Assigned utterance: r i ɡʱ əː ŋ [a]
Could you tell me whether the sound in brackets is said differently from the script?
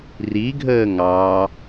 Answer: yes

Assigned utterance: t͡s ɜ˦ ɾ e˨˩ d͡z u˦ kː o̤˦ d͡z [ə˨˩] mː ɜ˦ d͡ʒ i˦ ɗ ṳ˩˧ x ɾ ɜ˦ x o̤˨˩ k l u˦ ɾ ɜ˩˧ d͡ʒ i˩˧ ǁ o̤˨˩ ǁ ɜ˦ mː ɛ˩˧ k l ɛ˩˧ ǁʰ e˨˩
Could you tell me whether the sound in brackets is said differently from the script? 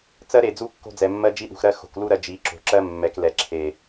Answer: yes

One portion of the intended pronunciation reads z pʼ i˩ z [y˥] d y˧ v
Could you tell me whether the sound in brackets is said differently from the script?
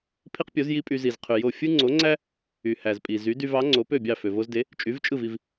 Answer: yes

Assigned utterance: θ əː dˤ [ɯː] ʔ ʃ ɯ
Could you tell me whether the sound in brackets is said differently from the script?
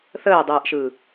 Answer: no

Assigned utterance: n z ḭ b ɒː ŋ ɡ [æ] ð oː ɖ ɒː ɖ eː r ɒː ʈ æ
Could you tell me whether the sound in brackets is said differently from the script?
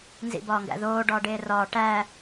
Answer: yes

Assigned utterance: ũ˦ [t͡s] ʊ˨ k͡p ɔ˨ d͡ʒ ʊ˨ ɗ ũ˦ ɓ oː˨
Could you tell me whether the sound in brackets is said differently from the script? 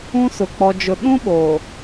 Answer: yes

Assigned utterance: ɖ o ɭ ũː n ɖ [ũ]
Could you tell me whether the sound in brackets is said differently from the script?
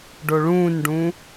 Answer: no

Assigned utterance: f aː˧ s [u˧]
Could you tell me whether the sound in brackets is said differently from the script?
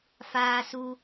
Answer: no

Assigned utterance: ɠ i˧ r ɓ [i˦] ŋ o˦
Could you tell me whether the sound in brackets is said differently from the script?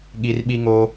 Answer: no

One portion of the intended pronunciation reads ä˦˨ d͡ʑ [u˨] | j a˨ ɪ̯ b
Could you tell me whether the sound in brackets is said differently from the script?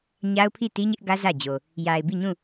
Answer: yes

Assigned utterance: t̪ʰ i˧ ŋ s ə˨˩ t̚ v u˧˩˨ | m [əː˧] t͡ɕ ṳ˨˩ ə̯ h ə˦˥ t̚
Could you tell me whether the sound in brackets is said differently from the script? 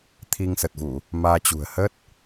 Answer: yes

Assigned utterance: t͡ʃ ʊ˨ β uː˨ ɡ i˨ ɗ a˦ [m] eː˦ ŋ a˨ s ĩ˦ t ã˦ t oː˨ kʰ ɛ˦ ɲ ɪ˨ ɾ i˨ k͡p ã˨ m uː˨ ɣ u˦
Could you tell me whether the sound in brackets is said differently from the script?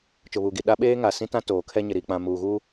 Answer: yes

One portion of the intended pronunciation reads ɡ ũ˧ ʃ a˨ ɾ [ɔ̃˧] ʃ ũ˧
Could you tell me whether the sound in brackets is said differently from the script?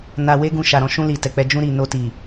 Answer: no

